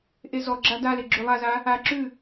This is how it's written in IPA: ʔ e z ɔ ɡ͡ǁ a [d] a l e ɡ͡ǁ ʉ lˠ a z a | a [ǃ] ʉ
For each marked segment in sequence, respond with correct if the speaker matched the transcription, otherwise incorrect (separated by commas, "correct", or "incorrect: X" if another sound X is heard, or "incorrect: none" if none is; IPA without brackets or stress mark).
correct, incorrect: ǁ